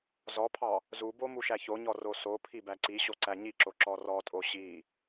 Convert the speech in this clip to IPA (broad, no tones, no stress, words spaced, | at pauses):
zɔpʰɑ | zubo muʃæçoɲɔ rosopʰi bæǀiɕo ǀæɲiǁo ǁɔrɔtʼo ɕi